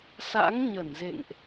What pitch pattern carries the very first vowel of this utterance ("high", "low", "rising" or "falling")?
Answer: rising